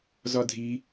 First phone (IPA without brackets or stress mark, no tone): z